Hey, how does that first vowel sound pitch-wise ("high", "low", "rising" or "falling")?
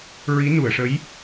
rising